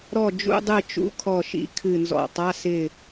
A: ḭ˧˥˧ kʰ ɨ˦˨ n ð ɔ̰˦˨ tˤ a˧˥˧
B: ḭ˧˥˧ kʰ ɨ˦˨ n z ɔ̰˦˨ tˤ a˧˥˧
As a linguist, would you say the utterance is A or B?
B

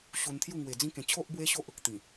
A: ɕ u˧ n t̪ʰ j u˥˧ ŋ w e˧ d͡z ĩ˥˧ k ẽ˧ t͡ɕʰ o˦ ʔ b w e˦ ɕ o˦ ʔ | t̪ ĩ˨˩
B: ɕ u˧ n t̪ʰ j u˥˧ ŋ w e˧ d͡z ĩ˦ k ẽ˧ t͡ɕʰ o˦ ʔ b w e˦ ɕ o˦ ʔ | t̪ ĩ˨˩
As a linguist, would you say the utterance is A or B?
B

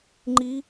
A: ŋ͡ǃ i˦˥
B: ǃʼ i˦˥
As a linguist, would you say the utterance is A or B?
A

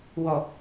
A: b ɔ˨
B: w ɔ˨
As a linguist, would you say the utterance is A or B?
B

